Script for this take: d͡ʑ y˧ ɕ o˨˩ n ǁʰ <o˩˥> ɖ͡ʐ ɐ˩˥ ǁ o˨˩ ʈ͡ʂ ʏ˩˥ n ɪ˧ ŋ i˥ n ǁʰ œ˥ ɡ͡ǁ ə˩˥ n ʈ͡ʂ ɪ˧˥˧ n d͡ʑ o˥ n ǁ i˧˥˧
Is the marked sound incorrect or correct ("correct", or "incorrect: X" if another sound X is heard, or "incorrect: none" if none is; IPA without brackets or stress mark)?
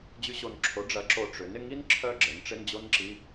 correct